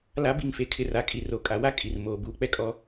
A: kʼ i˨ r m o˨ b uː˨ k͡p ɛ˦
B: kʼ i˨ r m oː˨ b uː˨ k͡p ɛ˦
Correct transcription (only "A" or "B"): B